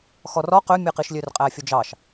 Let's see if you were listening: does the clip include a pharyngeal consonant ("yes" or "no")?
no